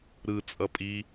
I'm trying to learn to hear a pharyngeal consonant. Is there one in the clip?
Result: no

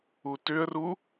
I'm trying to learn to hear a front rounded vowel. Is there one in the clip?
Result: yes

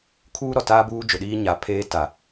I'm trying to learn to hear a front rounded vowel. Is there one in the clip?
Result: no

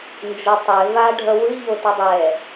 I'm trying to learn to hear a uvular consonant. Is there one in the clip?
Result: no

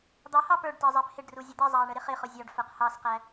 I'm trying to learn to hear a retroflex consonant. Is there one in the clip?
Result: yes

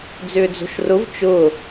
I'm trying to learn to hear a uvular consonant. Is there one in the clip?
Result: no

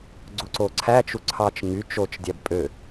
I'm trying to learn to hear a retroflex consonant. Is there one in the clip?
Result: no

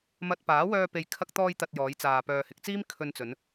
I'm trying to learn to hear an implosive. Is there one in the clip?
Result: no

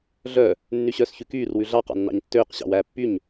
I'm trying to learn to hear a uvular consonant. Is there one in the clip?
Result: yes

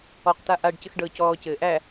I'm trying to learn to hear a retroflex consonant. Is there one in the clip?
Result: yes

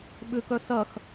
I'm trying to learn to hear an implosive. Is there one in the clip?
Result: yes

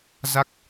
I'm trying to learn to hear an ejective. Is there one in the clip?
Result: no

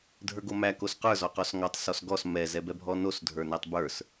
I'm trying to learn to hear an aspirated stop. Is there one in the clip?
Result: no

